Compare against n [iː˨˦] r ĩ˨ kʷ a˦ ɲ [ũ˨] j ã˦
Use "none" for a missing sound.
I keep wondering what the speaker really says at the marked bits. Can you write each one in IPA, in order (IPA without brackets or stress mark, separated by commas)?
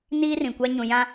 iː˦, ũ˨